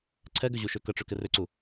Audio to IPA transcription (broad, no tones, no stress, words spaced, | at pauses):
ǀʰɛɡʏʑuʃø kəʈ͡ʂʏkɪ rʏǀu